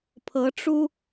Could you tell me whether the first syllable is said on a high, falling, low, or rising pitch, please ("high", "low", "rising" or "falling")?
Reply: rising